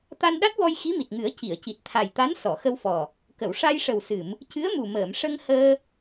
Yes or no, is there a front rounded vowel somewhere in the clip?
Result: no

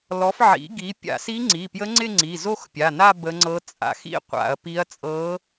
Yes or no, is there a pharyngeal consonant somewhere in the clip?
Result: yes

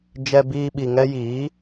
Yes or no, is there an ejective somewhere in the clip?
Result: no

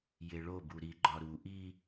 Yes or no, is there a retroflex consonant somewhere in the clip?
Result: yes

